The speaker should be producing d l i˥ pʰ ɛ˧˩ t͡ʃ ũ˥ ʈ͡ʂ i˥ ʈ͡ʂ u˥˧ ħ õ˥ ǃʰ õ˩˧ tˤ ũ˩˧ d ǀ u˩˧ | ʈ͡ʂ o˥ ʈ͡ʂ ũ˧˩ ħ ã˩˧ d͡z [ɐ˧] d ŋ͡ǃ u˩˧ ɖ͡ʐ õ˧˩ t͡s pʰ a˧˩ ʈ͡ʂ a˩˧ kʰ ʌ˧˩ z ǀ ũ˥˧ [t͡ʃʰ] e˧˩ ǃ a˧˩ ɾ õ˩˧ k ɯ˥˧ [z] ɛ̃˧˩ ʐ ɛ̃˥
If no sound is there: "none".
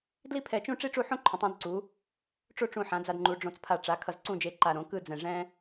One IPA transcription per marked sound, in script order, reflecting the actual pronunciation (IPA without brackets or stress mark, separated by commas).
a˧, d͡ʒ, d͡z